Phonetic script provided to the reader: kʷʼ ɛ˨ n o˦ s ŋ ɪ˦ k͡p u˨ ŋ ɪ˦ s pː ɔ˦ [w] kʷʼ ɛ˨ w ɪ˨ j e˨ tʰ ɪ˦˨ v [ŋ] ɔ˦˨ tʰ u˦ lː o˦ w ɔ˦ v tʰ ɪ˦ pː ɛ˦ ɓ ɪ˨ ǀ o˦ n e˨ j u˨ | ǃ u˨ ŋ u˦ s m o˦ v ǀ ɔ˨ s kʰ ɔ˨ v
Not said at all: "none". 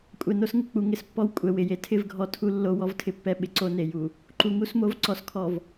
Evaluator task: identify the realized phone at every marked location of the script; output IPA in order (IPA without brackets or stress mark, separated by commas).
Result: w, ɡʱ